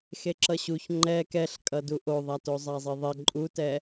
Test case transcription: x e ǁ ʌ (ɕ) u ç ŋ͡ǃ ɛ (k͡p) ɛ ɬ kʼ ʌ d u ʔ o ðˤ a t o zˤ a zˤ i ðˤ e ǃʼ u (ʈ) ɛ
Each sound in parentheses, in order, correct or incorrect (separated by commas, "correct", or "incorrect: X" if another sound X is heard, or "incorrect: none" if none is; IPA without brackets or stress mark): correct, incorrect: k, incorrect: t